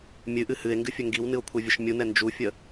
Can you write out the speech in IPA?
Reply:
mʲɨʔɨ hɨe̯ŋɡɨfʲə ŋɡiwnɨo̯kʷʰɛvʲəʃ mʲunɛ nd͡ʒufʲə

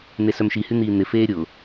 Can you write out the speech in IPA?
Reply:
n̪esœmʃihy n̪iːn̪ɪfeː ɾʲʊ

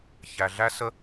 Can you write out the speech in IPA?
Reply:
çæ˨ɮæ˦sə˦

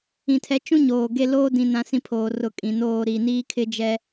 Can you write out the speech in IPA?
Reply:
ĩ˨tʰɛ˨˦t͡ʃũ˦ ɲoː˨ɡe˦ loː˦dĩ˨ nã˦sĩ˦pʰoː˨ rʊ˨ kʼĩ˨noː˦˨ ɾi˨ niː˦kʰɪ˦d͡ʒɛ˦

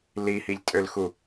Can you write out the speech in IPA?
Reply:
lihiʎtʼølxu

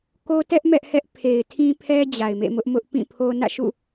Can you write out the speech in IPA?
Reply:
ko˦tɛ˦ʔ mɛ˦ʔhɛ˦ʔ pʰe˨ɪ̯tʰĩ˦pʰɛ˦ d͡ʑa˨ɪ̯mḛ˦˨mʊ˦ʔmʊ˦ʔ pĩ˦˨pʰo˦ nä̰˦˨ʃṵ˦˨

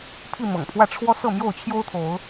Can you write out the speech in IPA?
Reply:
pʰi˥˨ mɤ̰˨˩ŋpʰwä˥˨ ʈ͡ʂʰwɔ˦ sɤ˥˨mjo˥˨ʊ̯ t͡ɕʰjo˦ʊ̯t̪ʰo˨˦ʊ̯

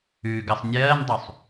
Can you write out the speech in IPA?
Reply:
ʉɡəsˤ nʲɜːndˤusˤ

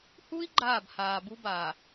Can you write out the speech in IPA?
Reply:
hu˦i̯ ɡ͡ǃaː˦˨bhaː˨bu˦baː˨

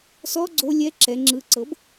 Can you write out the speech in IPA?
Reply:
sɔ ɡ͡ǀo lʲɛ ǁɛ ŋ͡ǁɯ ǀɤb

